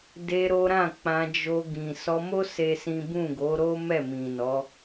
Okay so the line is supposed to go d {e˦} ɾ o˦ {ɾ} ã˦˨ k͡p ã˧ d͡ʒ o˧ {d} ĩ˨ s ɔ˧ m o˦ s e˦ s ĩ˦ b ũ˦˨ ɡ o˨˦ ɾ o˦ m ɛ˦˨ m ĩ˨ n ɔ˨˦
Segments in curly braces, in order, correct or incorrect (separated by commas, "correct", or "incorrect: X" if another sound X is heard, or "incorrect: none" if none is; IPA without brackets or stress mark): incorrect: e˧, correct, incorrect: ɡ